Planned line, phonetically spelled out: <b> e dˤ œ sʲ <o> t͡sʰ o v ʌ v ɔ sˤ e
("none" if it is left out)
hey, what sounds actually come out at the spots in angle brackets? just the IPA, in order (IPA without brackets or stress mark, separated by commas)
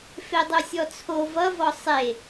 f, ɔ